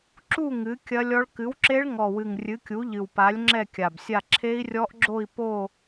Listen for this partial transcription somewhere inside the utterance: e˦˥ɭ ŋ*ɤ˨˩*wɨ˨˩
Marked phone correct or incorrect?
incorrect